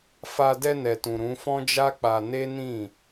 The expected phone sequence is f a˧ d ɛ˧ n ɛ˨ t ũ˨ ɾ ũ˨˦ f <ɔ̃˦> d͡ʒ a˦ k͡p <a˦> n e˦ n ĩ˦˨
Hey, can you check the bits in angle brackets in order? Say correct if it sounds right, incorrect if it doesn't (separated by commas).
correct, incorrect